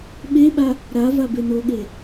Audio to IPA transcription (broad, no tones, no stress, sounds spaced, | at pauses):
ɓ e ɓ a | ɾ a v a b e n o ɠ e